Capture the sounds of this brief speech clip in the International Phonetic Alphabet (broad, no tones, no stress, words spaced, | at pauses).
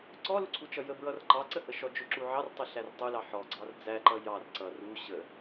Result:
ǀɔluǀʰut͡ʃʌ jəbɹʌr ǃɑǀəhə ʃɔd͡ʒʊǁu ʕɑrtˤɪ ɬærtˤulɑ ħɔɡ͡ǀɑr d͡zæǃʌ jɑr ǀʌ ru ɕə